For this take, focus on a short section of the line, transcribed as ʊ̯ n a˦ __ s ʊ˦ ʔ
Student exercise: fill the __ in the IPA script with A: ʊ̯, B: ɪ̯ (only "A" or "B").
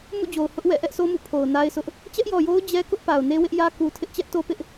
B